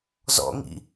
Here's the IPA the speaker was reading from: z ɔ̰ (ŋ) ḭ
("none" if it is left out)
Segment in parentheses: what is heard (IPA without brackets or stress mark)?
ŋ